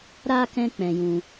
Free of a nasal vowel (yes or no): no